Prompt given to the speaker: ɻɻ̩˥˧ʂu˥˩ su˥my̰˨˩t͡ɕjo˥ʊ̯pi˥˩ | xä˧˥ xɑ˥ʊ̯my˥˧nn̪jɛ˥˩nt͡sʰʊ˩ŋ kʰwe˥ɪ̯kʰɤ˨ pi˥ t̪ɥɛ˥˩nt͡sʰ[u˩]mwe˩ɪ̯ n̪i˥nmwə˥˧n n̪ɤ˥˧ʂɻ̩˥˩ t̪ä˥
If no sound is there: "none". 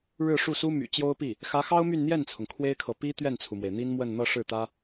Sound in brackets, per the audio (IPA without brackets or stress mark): u˩